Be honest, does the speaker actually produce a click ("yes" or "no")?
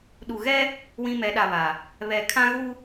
no